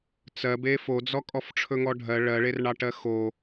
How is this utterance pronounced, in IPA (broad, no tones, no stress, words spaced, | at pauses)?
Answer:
t͡sɜbe fod͡zɔ kʼɔfʈ͡ʂʰɵŋɔɖʱɜ ɭɜɭerɳɑʈɜ xo